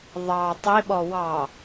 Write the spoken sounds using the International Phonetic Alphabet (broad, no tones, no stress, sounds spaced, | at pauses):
ðˤ ɑ tˤ i ɓ ɔ w ɑ